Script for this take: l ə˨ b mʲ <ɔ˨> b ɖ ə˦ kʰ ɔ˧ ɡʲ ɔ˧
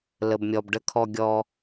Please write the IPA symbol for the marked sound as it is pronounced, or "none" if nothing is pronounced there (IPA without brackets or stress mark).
ɔ˨